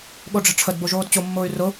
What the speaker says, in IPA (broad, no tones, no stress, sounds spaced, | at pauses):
ɠ o ɖ͡ʐ e̤ ʈ͡ʂʰ ə d b o ʒ oː d t͡ɕ o mː ʊː y̯ r ʊ